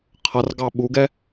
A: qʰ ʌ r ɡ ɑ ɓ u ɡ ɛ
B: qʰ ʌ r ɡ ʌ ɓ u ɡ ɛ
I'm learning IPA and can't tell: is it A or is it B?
A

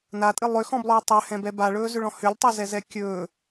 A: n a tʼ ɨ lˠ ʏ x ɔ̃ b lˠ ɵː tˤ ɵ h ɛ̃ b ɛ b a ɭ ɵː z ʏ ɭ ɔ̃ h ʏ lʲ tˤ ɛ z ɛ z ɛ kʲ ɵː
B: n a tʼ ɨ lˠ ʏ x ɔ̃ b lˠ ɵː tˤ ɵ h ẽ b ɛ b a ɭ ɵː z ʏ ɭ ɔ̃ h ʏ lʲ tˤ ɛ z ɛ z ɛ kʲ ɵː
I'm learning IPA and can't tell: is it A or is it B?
A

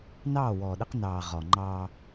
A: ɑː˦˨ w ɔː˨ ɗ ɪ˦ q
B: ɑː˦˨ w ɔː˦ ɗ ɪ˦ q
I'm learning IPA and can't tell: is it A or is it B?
A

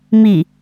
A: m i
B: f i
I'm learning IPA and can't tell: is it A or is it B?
A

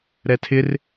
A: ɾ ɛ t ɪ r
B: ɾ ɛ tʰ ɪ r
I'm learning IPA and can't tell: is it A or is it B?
B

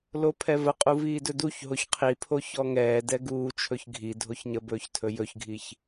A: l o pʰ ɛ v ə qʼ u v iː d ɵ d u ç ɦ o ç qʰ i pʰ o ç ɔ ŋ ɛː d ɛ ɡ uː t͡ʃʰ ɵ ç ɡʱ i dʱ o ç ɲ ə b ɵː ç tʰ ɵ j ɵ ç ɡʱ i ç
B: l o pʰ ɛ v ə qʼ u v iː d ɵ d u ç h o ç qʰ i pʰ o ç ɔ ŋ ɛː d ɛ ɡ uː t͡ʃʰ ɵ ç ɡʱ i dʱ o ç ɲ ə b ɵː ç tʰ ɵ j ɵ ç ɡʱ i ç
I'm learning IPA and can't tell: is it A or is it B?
A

